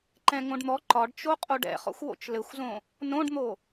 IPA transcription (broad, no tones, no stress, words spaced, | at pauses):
ǃɛ̃ŋõɖn̪ɔ ǃɒɖt͡ʃo qʼoɖɛ̰χɔ̰xʷwo̰t͡ʃ lɘxʷzõ | nõɖn̪o